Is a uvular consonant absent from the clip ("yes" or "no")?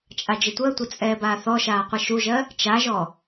no